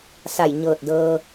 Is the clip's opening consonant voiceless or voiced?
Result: voiceless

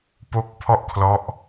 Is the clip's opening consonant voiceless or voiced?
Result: voiceless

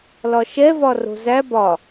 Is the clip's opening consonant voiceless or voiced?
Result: voiced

